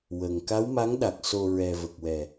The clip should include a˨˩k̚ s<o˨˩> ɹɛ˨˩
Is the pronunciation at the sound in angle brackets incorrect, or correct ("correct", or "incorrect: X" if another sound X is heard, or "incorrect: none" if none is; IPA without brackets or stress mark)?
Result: correct